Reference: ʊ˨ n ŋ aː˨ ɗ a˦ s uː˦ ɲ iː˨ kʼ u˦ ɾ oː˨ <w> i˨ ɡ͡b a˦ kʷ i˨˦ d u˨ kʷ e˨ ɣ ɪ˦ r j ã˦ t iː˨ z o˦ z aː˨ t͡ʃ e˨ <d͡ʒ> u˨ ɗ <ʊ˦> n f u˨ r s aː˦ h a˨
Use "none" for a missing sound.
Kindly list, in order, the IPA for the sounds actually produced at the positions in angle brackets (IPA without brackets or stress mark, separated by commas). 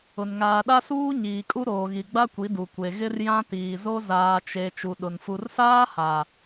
ɣ, t͡ʃ, ʊ˨